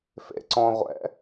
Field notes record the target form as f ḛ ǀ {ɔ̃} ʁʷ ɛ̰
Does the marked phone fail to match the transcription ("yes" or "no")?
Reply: no